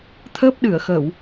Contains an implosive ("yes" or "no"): yes